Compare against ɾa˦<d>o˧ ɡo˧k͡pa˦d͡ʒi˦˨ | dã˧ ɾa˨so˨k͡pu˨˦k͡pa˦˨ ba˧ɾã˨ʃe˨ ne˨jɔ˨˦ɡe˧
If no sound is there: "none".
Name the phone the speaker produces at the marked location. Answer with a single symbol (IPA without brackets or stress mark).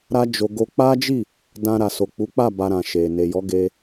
d͡ʒ